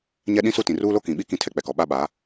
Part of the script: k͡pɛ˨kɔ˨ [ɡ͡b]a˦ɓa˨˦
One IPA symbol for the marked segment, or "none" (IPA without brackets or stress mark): ɓ